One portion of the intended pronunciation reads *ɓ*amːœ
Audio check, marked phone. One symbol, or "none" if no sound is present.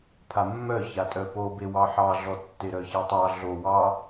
pʰ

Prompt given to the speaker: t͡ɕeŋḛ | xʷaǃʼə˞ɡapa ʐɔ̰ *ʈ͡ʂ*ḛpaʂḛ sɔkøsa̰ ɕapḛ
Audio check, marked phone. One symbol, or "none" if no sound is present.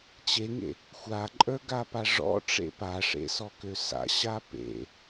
ʈ͡ʂ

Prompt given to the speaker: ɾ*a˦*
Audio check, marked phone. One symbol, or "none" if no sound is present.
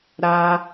a˦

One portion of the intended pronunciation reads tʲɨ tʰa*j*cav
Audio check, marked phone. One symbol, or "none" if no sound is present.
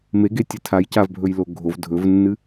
j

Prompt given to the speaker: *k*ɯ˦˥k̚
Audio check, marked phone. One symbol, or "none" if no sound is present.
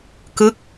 k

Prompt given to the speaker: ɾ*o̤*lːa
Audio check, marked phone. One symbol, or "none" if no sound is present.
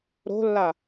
o̤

